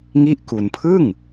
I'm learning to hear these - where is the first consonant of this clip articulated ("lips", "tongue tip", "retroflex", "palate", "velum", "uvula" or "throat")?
velum